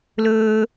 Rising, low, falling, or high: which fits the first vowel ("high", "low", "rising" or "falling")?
high